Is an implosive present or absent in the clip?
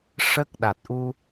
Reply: present